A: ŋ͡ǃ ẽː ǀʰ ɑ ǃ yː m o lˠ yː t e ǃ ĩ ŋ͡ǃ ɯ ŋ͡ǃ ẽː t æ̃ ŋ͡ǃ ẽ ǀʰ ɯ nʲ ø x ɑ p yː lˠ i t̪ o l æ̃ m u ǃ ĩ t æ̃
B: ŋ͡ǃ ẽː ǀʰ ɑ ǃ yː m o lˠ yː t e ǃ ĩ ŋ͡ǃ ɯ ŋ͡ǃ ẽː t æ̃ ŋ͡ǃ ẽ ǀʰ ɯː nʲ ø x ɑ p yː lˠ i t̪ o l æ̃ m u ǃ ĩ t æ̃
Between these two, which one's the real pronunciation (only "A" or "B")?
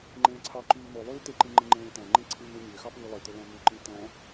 B